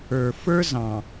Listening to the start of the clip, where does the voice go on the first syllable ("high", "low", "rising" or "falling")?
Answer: low